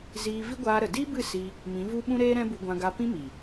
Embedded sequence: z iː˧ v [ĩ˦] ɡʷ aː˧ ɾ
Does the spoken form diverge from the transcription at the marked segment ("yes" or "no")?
yes